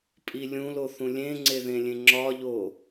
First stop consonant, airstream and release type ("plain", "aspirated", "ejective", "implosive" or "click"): ejective